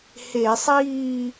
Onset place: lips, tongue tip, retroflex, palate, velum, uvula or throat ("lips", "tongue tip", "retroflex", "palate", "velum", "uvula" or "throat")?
throat